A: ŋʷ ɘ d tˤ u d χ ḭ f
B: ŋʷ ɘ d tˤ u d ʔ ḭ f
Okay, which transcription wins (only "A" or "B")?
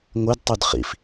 A